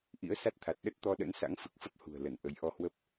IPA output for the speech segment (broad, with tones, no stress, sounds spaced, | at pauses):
ʔ ḭ˧˥ ə̯ s a˦˥ t̚ t̪ʰ a˨˩ t̚ ɗ ə˦˥ t̚ t̪ ɔ˧ ɗ ə̰˧˥ n s a̰˧˥ ŋ f ɨ˨˩ k̚ f ə˦˥ p̚ h ṳ˨˩ ə̯ l ə˧˩ n ʔ ə˨˦ j ʔ ɔ˧ h w ə˦˥ p̚